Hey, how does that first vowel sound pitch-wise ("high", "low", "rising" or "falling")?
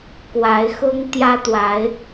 rising